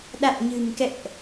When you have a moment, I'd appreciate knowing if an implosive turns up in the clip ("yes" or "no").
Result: yes